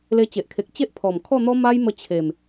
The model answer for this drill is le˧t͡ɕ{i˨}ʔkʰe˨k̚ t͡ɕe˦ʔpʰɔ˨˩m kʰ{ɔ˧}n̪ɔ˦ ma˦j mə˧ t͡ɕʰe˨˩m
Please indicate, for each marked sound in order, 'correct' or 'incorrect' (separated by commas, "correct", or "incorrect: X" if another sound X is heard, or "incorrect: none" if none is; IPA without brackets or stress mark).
incorrect: e˨, incorrect: ɔ˥˧